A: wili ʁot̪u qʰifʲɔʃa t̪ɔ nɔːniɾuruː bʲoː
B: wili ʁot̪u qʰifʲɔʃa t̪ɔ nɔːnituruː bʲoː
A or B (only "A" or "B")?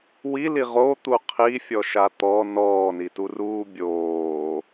B